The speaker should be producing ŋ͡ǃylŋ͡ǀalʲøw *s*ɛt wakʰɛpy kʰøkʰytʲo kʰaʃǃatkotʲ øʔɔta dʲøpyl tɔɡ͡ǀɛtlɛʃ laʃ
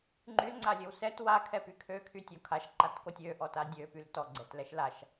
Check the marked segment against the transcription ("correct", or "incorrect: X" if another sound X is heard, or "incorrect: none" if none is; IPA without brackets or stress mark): correct